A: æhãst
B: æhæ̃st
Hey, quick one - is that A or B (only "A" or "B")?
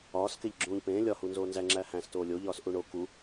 B